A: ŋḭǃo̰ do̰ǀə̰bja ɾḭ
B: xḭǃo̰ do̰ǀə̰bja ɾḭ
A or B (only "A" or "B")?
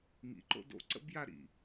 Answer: A